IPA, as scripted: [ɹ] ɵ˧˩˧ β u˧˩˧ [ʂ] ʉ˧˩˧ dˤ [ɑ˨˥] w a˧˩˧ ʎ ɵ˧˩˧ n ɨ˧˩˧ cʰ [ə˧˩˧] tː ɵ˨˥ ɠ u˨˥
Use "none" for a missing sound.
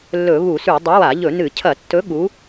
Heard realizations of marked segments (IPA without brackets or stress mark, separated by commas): lː, s, ɐ˨˥, ɐ˧˩˧